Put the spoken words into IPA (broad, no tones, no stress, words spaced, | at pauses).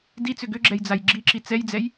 dit͡sʏ ɡʏɡ͡ǁɛjd͡zaj ɡ͡ǁiǁi t͡sɛjd͡zɛj